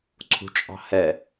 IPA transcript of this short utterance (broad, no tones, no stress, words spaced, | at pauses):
ǀʰṳt͡ʃʼɑ̤hɛ